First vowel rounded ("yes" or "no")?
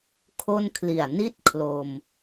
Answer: yes